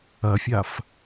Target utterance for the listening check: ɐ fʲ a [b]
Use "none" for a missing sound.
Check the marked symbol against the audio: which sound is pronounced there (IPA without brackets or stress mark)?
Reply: f